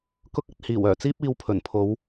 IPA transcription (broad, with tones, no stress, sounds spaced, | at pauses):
k ʊ˧ k̚ ɐ˧ t̚ h iː˨˩ w œː˨˩ t͡s iː˥ p̚ iː˧ w pʰ ɵ˨˩ n pʰ o˨˧ w